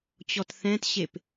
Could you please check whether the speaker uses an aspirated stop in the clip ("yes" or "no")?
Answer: no